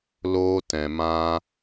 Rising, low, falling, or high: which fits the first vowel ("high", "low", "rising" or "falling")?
high